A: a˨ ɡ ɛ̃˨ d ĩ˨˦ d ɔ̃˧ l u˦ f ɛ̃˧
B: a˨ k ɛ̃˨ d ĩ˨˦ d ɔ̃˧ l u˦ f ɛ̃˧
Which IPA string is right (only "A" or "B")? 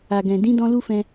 A